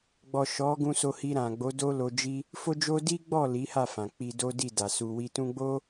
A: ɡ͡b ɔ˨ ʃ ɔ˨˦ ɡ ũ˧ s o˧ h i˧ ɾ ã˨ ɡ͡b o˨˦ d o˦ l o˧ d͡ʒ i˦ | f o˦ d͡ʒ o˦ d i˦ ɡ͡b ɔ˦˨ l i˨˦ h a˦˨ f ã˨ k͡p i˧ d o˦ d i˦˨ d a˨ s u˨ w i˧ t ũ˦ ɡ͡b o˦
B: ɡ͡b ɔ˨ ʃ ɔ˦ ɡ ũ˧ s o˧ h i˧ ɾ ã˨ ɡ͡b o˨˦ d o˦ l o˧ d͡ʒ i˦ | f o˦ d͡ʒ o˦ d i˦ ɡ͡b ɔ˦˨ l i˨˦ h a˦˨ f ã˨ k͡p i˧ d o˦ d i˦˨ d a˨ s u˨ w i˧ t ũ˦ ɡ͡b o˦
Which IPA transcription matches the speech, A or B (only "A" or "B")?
A